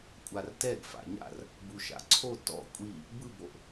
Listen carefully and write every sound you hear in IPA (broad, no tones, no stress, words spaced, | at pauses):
kʷʼartɛɡ fa̰ɲa̰r | buʃa̰ǀʰo tɔ̰ kʷʼi | bɯboʔ